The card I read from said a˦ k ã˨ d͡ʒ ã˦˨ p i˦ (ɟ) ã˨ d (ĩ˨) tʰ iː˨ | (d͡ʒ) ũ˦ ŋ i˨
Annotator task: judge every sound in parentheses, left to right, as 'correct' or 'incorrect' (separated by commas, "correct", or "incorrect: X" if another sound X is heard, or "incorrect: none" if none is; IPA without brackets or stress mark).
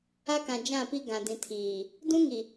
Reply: incorrect: ɡ, correct, incorrect: d